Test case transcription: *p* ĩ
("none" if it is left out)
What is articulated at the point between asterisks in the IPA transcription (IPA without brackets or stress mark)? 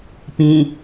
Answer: p